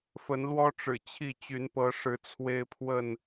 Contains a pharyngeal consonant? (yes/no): no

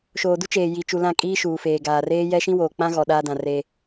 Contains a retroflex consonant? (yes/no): no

